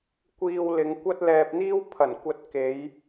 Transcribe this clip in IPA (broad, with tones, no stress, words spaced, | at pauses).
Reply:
kʷiː˧wlɪ˨˧ŋ kʷɐ˥t̚lɛː˧p̚n̪iː˥w pʰɐ˨˩n kʷɐ˧t̚ke˨˧j